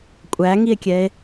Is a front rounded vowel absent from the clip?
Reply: yes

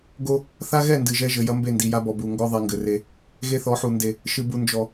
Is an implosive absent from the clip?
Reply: yes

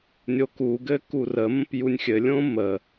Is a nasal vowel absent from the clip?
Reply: no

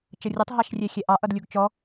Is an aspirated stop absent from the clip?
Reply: yes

